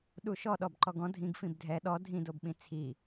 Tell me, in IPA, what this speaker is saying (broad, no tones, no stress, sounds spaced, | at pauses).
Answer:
ɗ u ʃ ɔ ɗ ɔ b ǃ ɔ ɡ ɔ̃ dʱ ĩ ɡ f ĩ b dʱ ɛ ɗ ɔ dʱ ĩ d o b ɓ ĩ t͡sʰ i